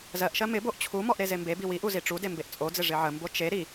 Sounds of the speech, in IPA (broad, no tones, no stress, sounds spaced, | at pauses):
z ɜ ʔ ʃ ɜ m ɪ b o ʔ t͡ɕʰ u m ɔ ʔ ɾ e z e m b e b i w i ʔ u z i ʈ͡ʂ u d e m b e ʔ t͡sʼ o d͡z ɪ ʐ ɪ ʕ ə m b o t͡ʃ e ɾ i